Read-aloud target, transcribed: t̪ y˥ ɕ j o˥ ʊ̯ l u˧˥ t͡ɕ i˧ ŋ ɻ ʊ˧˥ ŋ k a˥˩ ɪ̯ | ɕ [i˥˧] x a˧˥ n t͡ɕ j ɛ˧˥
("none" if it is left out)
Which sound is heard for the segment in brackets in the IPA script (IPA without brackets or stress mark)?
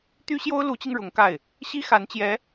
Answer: i˥